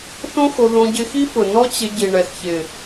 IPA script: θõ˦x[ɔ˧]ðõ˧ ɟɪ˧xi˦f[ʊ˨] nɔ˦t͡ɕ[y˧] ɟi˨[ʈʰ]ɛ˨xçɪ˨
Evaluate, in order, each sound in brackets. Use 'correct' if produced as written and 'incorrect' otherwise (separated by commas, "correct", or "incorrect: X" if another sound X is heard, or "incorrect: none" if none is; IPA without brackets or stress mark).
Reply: incorrect: o˧, correct, incorrect: ɪ˧, incorrect: ɳ